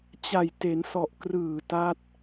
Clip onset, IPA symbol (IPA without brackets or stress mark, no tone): t͡ɕ